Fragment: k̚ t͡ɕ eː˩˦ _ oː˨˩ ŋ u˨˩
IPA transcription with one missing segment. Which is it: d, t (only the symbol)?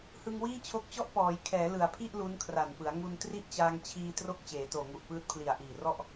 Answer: t